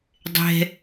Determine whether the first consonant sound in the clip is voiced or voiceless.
voiced